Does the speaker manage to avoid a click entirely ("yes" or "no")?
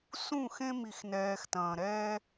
yes